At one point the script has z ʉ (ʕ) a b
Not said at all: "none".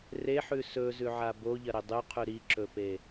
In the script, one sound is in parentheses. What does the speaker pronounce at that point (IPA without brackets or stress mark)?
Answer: ʕ